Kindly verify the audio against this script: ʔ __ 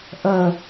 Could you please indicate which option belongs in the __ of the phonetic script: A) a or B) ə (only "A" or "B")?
B